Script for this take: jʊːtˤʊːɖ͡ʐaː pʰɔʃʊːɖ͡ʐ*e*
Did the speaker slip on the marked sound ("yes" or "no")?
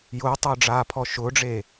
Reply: yes